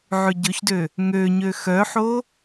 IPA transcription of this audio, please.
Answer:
ʕ ʉ ɟ ɵ ç d ø | ŋ ø ɲ ø x œ ħ o

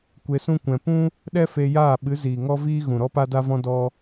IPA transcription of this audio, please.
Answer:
kʷ e˧ s ũ˦ kʷ ɛ̃˧ p ũ˦ | ɗ ɛ˦ f e˧ j aː˦˨ ɓ ɨ˨˦ z iː˨ ŋ ɔ˦ v iː˦ ɣ ũ˨ ɾ ɔ˦ p a˦ d a˦ v ɔ̃˦ d ɔ˦

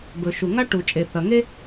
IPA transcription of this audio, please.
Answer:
b ɵ˩ ʃ u˩ ŋ a˥ ʈ u˩ t͡ʃʼ e˩ θ ɐ˩ ŋ e˥

